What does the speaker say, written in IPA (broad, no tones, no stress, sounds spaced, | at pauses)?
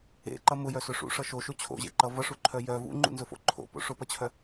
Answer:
ḛ ǃ ʌ m ʊ j œ s ʊ ʂ ṵ ʂ ʌ ʃ o ʃ o t͡ɕʰ o̰ ʑ ḛ ǃ ʌ v ʌ ʂ u ǃʰ œ j œ v ṵ ŋ͡ǃ ṵ n z ʊ f o̰ ǃʰ o̰ p o̰ ʂ ʊ p ʌ t͡ɕʰ œ